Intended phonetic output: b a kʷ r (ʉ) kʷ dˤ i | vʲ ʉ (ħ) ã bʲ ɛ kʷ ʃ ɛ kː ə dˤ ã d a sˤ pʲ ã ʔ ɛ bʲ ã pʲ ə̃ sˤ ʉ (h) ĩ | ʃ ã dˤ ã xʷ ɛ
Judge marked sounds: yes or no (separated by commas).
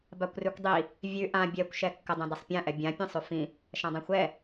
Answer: yes, no, no